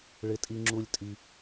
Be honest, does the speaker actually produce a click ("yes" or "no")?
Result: yes